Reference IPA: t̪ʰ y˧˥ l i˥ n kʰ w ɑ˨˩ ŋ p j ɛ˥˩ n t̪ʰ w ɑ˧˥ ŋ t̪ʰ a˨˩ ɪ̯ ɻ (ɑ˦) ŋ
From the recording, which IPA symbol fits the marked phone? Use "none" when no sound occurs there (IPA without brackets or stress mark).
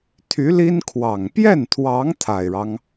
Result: ɑ˦